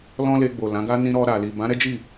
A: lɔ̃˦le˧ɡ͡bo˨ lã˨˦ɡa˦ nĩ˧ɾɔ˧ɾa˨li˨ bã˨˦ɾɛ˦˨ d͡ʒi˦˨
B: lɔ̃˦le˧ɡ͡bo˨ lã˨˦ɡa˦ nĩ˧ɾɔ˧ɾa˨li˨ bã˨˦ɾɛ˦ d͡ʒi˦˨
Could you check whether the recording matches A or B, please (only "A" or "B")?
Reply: B